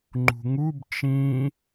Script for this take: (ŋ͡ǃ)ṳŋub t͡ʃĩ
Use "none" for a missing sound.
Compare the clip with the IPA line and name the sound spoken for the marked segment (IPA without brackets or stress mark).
ŋ͡ǃ